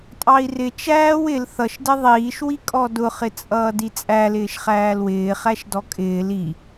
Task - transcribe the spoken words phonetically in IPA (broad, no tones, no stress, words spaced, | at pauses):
tʼɑi̯rɪ t͡ʃæːw ɪl θʌʃdɪ ðˤiːʃwikʼɔ dʊχɪt͡sʼʌːdi t͡sʼælɪːʃ χæːlwɪː χæʃdɔkʼɪːl i